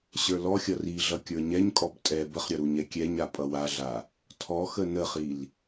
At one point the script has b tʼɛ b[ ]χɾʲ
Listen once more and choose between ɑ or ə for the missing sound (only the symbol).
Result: ə